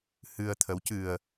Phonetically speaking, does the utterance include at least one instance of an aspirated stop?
yes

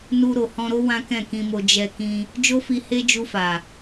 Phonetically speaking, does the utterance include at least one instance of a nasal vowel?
yes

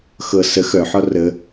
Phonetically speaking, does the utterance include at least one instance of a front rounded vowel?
yes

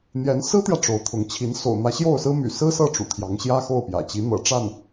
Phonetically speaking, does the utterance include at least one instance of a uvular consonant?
no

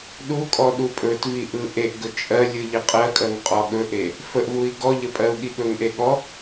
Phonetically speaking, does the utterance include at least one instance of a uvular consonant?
yes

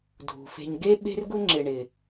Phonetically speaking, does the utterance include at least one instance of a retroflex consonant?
yes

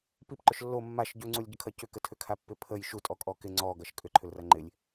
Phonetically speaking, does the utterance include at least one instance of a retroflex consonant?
no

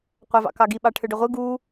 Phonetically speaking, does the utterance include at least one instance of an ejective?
no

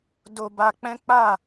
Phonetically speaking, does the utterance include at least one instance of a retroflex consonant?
no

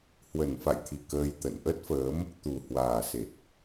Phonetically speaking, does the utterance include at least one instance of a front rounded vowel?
no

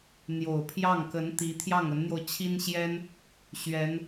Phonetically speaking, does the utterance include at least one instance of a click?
no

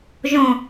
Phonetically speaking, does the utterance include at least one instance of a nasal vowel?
yes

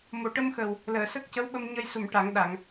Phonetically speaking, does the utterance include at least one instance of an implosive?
yes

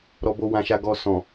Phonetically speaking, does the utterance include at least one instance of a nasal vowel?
yes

